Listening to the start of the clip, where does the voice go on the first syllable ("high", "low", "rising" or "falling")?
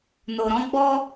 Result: low